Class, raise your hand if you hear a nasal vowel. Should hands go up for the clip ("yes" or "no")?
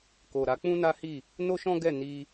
yes